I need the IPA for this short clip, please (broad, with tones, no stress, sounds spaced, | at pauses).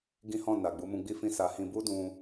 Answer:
ɡ ĩ˦ h ɔ̃˦˨ n a˨ ɡ͡b u˨˦ m ũ˧ ɡ͡b i˦ f ĩ˦ s a˧ h ĩ˧ b u˦ d ũ˧